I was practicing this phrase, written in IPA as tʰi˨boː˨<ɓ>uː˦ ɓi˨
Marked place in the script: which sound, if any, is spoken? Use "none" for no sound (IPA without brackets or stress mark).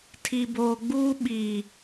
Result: ɡ͡b